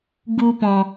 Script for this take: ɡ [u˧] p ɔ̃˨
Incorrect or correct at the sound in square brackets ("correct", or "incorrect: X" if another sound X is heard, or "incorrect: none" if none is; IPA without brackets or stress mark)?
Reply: correct